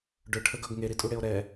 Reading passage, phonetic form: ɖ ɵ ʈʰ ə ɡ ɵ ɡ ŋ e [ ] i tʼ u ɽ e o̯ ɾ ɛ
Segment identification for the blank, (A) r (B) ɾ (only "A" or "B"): B